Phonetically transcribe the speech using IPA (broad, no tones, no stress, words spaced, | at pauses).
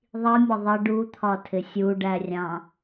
ðˤimʲə ðˤɪ ɖut̪ʰɒtʰɪ sʲuɖærʲɑ̃